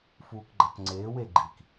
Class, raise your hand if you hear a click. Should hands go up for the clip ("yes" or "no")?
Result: yes